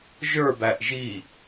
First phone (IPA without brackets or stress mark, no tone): ʒ